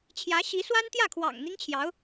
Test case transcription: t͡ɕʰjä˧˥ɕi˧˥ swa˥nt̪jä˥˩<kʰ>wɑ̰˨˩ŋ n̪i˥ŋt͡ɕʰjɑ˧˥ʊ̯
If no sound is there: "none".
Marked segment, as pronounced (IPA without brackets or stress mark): kʰ